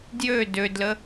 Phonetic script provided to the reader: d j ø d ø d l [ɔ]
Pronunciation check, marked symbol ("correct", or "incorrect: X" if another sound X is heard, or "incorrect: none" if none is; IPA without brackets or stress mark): incorrect: ə